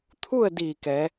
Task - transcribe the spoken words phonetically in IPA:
t̪ʰ u˥˨ ə̯ d iː˧˩ k ɛː˩˧

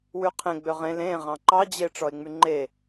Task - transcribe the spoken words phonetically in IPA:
w ʉ qʰ ẽ ɡ͡b ø ʁ ẽ l ẽ ʁ ɑ̃ ǃ ɑ d͡ʑ e ʈ͡ʂ ɔ e̯ ŋ͡m y ŋ͡ǃ e

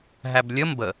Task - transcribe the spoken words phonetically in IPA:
ɦ æ b lʲ ə m b ə

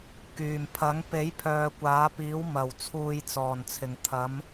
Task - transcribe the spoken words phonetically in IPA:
k yː˨˩ m pʰ ɐ˨˥ ŋ p e˨˥ j pʰ œː˨ kʷ aː˨˥ p iː˨˥ w m ɐ˨˩ w t͡sʰ uː˨ j t͡s ɔː˨˩ n t͡sʰ ɪ˨˩ ŋ t̪ʰ ɐ˨˥ m

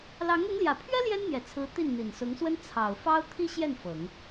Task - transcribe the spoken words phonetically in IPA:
l ɑ˧˥ ŋ ʊ˧˥ ŋ l j ä˨˩ pʰ ɥ ɛ˥ l j ɛ˥ n n̪ j ɛ˨˩ t͡sʰ ɹ̩˧˥ t̪ i˥˩ n n̪ i˨˩ n s ʊ˧˥ ŋ s w ə˥ n t͡sʰ ɑ˨˩ ʊ̯ f ɑ˥ ʊ̯ t̪ʰ i˥ ɕ j ɛ˥˩ n f ɤ˨˩˦ ŋ

